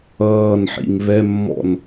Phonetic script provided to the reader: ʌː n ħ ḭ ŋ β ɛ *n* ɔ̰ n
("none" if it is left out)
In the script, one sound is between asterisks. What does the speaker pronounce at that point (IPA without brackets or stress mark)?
mː